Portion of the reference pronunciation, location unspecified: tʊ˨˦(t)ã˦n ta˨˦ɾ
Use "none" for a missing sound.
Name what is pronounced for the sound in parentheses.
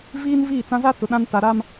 ɗ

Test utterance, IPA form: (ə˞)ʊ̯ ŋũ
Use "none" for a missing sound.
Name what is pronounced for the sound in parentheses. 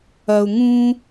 ɐ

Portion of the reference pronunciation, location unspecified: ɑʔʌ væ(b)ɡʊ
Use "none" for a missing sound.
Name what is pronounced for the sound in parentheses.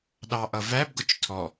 b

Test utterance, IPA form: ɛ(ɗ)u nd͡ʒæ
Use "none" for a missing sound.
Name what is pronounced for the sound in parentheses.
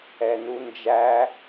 n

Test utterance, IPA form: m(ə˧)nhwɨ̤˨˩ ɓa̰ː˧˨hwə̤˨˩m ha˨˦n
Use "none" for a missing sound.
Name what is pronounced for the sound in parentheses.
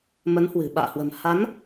ə˨˦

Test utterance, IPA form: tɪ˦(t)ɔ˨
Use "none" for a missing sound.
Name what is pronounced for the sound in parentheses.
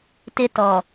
t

